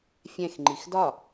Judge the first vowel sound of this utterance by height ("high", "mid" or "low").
mid